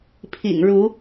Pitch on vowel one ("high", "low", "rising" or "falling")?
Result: low